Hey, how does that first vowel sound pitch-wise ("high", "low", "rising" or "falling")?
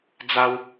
high